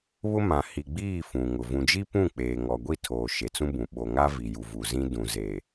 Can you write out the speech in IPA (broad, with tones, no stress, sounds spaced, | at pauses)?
β ʊ˦ m ã˨ h i˨ ɡ͡b iː˦˨ f ũ˨ ŋ ʊ˨ v ũ˨ d͡ʒ i˦ p ũ˦˨ k͡p eː˨ ŋ ɔ˨ ɡʷ i˦˨ tʰ oː˨ ʃ e˨ t͡s ũ˦ b ũ˨ ɓ o˨ ŋ a˦ v i˨ j u˨ v u˨ z ĩ˦ d ũ˨ z e˨